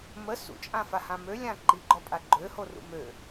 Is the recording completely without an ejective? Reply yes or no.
no